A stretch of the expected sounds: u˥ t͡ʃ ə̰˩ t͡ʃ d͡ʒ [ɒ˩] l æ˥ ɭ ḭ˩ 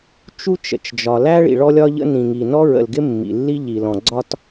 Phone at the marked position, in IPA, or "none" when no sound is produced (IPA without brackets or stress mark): ɒ˩